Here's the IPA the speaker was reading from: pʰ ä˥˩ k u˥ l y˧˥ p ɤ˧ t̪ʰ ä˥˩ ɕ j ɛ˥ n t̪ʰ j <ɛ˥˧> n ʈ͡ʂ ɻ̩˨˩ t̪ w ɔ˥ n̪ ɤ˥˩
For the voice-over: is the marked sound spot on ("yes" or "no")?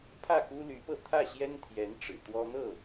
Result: no